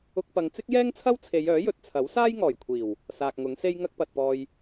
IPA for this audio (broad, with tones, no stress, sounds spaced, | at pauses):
ʊ˧ k̚ p ɐ˨˧ ŋ t͡s ɪ˥ k̚ j ɛː˥ ŋ t͡sʰ ɐ˥ w t͡sʰ e˨˧ j œː˨˥ j ɵ˨˥ t̚ t͡sʰ ɐ˨˥ w s aː˥ j ŋ ɔː˨˩ j kʷʰ iː˨˩ w | s aː˨ k̚ ŋ ʊ˨˥ ŋ s e˥ j ŋ ɐ˥ k̚ p ɐ˨ t̚ p ɔː˧ j